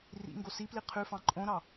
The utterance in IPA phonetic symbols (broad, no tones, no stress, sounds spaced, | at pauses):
r ḭ ŋ ɡ o s i p l i qʰ ʉ f ɑ̃ ǃʼ õ ɾ ɑ